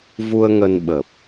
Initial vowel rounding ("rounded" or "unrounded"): rounded